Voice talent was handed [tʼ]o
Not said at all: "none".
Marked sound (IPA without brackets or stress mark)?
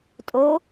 tʼ